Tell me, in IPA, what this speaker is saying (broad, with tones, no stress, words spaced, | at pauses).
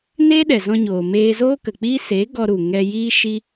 neː˦ɗɛ˨zɔ̃˧ɲoː˨ meː˧zoː˦kə˨k͡piː˦ seː˨˦ ɡɔ˧ɾu˨ŋɛ˧jiː˦ ʃi˦